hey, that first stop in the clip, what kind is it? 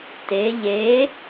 plain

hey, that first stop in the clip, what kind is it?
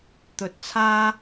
plain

